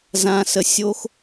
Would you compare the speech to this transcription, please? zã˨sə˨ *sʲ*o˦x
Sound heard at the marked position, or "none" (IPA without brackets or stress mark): sʲ